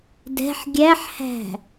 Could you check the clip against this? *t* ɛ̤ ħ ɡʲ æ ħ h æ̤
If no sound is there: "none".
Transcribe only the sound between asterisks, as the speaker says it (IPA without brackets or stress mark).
d